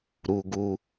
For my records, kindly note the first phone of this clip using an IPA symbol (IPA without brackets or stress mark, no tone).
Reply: ɾ